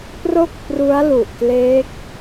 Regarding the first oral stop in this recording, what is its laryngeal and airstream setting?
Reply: plain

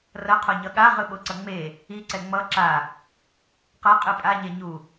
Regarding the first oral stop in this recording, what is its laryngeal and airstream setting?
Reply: aspirated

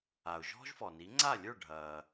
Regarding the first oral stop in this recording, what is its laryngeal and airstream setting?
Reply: click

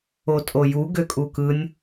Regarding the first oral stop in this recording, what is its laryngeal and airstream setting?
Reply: ejective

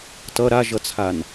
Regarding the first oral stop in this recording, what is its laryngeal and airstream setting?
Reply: plain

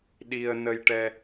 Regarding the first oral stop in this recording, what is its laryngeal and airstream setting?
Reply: implosive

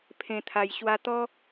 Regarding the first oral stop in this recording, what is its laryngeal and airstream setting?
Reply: aspirated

